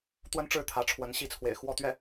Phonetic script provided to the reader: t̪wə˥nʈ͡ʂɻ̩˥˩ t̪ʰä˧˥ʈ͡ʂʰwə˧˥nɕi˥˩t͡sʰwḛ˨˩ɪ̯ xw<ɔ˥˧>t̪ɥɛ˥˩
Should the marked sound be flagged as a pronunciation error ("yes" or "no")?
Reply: no